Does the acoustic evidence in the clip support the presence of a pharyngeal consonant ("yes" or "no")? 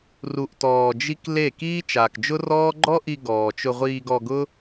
no